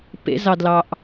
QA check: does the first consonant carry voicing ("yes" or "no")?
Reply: no